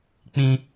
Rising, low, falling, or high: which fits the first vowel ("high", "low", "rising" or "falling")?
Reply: high